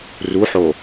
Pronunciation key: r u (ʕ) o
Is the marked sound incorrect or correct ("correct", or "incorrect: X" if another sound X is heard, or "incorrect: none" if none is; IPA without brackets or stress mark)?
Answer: incorrect: ħ